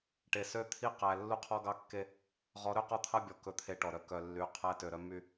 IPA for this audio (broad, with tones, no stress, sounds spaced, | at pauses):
ʈ e˨ s ø˦ t̪ʰ i˦ q æ˨ lː u˦ qʰ ɔ˦ ɡ ɑ˦˨ kː e˦ | ʁ ɔ˨˦ ɾ ø˦˨ q ɔ˦ t̪ʰ ɑ˦ bʲ ɔ˨ k ɵ˦˨ t̪ʰ e˦ ʈ ɔ˨ ɾ œ˦ k œ˨ lː y˨ qʰ æ˦ t ø˨ ɾ œ˦ m y˦